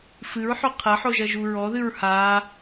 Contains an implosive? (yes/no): no